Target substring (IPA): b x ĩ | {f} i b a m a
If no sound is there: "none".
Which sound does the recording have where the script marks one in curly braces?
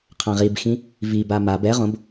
v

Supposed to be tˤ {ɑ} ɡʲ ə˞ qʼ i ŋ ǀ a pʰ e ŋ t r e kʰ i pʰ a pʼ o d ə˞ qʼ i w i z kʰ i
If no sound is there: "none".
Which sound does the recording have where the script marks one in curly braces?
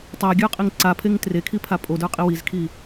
a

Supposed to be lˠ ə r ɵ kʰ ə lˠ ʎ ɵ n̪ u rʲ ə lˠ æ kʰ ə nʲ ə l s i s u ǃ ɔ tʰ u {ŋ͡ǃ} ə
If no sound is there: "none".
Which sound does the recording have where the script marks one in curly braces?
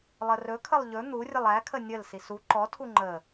ŋ͡ǃ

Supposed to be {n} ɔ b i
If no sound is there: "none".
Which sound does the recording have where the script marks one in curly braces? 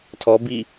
tʰ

